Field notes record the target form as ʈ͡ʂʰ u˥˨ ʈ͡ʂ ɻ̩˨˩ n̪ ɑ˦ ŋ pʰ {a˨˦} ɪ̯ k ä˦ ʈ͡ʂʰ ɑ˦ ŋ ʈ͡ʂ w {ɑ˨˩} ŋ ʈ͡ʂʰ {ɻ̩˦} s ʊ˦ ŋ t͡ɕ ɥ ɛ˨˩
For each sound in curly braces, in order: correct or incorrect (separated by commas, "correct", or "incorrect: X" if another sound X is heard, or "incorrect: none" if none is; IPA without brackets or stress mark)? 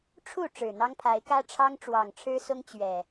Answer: correct, correct, correct